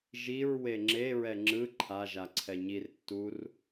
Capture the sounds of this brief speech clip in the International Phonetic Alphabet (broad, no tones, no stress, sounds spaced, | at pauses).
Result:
ʒ i ɹ w e ŋ͡ǁ e ɹ ɛ ŋ͡ǁ ɯ ǃʰ a ʒ a ǀʰ ɛ ɲ i r tː u r